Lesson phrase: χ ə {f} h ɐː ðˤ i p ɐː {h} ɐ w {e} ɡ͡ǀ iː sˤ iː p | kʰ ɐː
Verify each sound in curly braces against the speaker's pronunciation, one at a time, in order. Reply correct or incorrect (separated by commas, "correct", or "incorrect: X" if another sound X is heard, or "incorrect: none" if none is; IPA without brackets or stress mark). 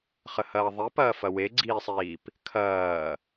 incorrect: none, incorrect: f, correct